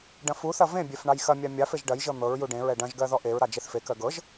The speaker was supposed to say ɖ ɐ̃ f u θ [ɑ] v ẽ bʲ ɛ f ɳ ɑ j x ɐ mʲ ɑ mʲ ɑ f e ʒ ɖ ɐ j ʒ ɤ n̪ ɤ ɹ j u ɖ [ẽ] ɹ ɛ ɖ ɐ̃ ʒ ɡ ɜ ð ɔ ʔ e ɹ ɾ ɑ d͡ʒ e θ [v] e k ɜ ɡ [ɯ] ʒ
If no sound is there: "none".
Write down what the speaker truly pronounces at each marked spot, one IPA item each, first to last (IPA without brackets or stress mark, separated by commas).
ɐ, ẽ, f, ɤ